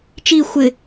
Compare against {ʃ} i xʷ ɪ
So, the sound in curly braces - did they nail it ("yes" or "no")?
no